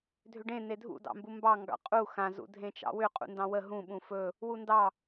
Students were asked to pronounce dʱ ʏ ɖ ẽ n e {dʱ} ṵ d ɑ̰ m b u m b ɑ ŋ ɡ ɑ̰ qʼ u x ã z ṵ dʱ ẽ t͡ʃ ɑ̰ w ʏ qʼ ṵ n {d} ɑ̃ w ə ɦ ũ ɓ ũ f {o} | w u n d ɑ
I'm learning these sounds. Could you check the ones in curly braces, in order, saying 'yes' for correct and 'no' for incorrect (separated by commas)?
yes, yes, no